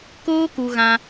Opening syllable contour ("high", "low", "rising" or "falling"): high